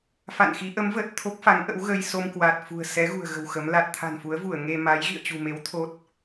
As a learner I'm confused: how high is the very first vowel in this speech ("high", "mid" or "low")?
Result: low